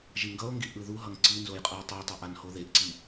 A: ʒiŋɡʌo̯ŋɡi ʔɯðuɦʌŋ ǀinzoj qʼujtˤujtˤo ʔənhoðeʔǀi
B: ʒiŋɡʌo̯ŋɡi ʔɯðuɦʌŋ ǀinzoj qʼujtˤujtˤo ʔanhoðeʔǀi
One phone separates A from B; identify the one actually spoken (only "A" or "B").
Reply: B